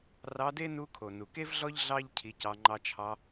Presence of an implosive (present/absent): absent